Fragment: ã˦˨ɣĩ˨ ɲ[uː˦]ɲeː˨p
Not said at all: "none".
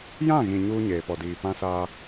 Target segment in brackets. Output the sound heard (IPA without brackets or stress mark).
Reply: uː˦